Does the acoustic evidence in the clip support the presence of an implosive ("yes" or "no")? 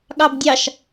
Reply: yes